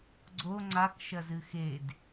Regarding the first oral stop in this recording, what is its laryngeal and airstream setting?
click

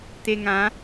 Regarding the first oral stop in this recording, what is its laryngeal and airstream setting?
plain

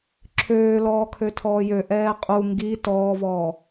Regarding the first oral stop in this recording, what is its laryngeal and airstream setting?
click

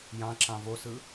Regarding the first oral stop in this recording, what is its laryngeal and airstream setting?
click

